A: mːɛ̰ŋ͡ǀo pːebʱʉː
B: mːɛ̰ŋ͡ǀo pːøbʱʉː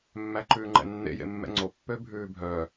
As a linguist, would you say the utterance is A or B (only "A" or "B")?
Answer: B